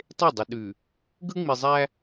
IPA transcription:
tˤe˦˨dˤə˨ɗʉ˨ | ɡɯ˦ŋ͡mi˨zˤæ˦

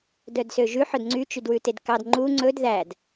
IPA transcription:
dœdsøʒʉ ħœdŋ͡ǀy t͡ʃydwʉtedkɑd ŋ͡ǃu ŋ͡ǀɵd ðæd

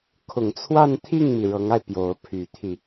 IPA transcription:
kʰʊ˨˩ŋt͡sʰwa˥˧nt̪ʰi˥˩ŋmi˩ ɻɤ˧˥ŋa˧ɪ̯ pjo˧˥ʊ̯ pʰy˨˩t̪ʰi˥˩

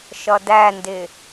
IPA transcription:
ʃʌdændɪ

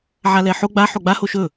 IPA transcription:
ʕalɛħo ɡ͡ba ħoɡ͡ba hoʃɵ

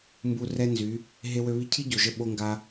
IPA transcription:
mbu˨ rɛ˦nzy˨˦ | ɦe˧wø˧ βi˧cʰi˦ ɟo˨ʒə˧ ɓo˦ŋɡa˦

